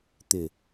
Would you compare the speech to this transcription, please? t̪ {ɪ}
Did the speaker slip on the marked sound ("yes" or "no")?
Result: no